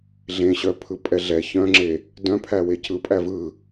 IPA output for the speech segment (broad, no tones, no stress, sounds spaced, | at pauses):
ɮ ẽ ɕ œ pʰ ɯ pʼ ɛ ɮ ɛ ç œ̃ ŋ͡ǁ e | d œ̃ pʰ æ w e c ɯ pʼ æ v ɯ